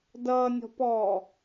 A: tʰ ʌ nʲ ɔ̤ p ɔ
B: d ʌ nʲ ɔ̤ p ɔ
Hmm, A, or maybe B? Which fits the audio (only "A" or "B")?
B